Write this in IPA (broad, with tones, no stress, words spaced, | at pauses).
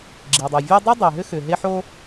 ɡ͡ǁi˩dˤɯ˩vʲɔ˥ dˤi˥dˤe˩ɦʏ˥ xʏ˩ ɦe˥ ħo˥